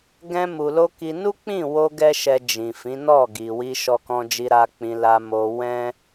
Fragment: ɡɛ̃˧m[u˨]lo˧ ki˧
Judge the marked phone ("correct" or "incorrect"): correct